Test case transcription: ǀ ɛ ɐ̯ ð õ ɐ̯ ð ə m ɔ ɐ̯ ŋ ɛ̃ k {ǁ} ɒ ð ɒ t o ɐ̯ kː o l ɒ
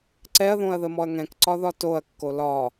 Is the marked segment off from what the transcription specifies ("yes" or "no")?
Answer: yes